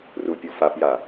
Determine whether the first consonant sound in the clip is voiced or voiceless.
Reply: voiced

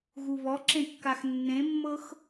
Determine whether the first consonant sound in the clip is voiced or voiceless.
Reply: voiced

